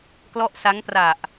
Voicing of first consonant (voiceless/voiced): voiceless